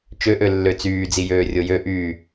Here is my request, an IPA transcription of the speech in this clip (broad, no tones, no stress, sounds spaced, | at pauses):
t͡ʃ ø ʔ ø lː ø t͡s yː d͡z i j øː rʲ o j ø ʔ yː